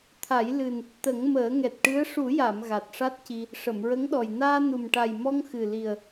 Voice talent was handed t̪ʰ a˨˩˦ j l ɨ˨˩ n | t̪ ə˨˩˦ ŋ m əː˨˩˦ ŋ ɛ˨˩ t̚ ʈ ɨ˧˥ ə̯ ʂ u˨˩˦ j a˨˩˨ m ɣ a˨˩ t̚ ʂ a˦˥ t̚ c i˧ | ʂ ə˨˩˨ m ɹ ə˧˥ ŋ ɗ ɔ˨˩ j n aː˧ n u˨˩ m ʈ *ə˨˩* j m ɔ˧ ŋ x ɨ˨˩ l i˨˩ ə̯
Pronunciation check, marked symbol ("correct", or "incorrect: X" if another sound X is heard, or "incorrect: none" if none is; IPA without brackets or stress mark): incorrect: a˨˩